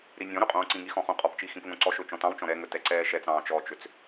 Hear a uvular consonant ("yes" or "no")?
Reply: yes